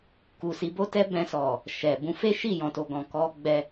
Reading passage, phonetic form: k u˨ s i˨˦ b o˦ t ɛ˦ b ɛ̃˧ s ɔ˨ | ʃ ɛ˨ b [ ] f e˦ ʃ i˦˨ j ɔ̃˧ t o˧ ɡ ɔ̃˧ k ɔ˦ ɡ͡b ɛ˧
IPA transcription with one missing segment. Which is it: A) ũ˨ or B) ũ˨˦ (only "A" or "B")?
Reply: B